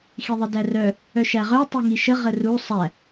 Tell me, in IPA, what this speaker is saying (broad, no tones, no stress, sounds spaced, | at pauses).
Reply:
x i ðˤ ə d æ r œ | œ ʃ æ ʁ œ tˤ i ŋ i ʃ ə ʁ ə r u sˤ æ